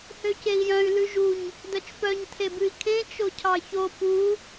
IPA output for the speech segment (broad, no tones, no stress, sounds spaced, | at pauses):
h ø c e i̯ j œ̃ y̯ l ʉ ʒ u ɲ | d œ t͡ʃ p œ ɲ tʰ e b ʉ i̯ kʰ ẽ t͡ʃ o cʰ ɑ ç o p u